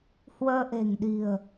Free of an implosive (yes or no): no